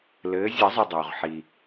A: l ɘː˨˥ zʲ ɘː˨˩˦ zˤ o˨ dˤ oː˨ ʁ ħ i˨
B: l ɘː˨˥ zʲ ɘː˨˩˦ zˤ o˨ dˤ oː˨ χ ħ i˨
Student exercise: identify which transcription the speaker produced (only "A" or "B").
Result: A